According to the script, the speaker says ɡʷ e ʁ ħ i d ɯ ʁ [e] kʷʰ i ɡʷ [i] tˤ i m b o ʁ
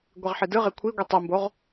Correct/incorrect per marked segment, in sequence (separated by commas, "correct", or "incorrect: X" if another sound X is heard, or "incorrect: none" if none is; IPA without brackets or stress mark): correct, correct